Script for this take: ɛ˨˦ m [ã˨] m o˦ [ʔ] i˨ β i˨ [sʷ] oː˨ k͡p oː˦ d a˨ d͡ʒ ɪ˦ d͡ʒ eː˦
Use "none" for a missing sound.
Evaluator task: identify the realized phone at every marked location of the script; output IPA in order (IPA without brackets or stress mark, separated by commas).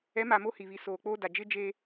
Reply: a˨, h, s